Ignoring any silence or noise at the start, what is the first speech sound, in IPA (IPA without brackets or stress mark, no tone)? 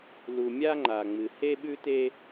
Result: l